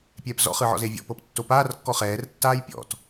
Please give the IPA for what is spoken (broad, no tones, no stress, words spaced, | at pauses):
pʲɛːpzɔ̰χɯʕɔ̰ zevʲɔ̰pɤp tːopaːrkːɔ χɛːrtːaːj pʲɔ̰t